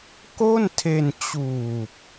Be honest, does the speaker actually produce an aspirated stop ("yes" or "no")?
yes